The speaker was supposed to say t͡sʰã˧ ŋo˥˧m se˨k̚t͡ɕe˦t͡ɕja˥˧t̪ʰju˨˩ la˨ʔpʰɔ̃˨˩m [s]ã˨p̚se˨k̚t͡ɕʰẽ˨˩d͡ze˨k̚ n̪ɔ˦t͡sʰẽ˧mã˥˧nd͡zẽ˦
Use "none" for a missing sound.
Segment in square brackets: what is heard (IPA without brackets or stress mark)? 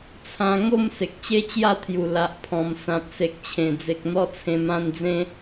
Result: s